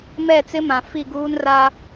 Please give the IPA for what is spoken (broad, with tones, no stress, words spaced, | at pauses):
mɛ˦˨t͡sɪ˦mã˨ fi˦˨ɡuː˦nra˦